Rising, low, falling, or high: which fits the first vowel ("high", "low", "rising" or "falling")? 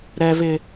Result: high